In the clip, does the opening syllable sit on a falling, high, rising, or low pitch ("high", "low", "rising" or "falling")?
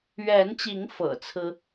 rising